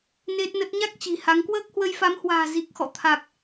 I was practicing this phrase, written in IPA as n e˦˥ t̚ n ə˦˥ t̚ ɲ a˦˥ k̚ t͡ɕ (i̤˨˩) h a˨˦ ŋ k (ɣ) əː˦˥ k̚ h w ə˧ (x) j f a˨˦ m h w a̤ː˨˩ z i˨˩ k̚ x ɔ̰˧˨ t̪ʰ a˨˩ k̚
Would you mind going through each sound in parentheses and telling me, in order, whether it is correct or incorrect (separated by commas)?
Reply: correct, incorrect, incorrect